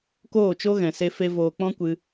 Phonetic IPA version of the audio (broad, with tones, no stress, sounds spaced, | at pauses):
k oː˦˨ t͡ʃ o˦ ɣ ɛ̃˨ s e˧ f e˧ v oː˨ k͡p ɔ̃˦ kʷ ɨ˧